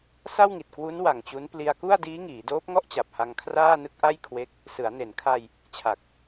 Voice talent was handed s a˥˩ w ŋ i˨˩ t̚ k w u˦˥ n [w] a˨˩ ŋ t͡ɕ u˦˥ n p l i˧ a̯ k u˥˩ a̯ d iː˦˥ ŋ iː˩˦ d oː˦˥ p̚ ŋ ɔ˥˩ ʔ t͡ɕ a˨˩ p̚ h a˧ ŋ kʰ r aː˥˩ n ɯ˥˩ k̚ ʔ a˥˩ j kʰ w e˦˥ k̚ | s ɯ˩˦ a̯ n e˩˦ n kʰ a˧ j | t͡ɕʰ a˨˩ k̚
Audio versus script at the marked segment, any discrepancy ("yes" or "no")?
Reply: no